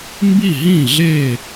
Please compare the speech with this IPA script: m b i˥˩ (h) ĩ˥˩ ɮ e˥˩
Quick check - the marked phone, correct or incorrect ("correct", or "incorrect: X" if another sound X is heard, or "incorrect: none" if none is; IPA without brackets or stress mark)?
incorrect: ɦ